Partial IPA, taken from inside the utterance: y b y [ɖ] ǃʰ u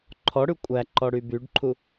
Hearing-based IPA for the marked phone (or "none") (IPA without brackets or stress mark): ɖ